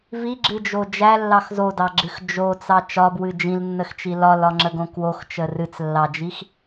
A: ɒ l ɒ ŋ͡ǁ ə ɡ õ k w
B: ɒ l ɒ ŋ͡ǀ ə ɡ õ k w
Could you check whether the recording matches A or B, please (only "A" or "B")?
A